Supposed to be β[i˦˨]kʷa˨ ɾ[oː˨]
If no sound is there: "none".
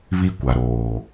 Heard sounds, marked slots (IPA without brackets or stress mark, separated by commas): i˦, oː˨